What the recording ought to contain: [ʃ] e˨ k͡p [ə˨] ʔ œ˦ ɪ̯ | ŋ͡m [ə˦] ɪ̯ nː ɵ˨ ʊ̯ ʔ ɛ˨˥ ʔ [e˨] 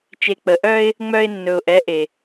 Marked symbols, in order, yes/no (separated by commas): no, yes, no, yes